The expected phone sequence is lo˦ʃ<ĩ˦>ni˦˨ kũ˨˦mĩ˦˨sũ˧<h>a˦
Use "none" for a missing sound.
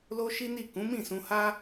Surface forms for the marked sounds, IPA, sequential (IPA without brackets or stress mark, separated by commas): i˦, h